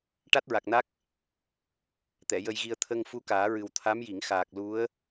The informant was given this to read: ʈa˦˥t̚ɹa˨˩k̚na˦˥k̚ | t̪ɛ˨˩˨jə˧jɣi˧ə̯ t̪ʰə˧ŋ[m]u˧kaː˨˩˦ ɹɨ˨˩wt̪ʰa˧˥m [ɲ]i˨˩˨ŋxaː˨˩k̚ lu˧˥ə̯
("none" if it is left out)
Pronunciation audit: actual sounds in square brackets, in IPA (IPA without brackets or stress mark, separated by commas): f, j